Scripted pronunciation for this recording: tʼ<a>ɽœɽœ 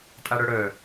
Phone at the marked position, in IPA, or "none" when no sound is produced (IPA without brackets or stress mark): a